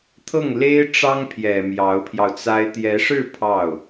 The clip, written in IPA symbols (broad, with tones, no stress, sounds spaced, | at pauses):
t̪ʰ ɤ˥˩ ŋ l e˥ ɪ̯ ʈ͡ʂ ɑ˥ ŋ pʰ j ɛ˨˩ m j ɑ˧˥ ʊ̯ pʰ j ɑ˧ ʊ̯ t͡s a˥ ɪ̯ t̪ j ɛ˧˥ ʂ ɻ̩˥˧ pʰ ɑ˥˩ ʊ̯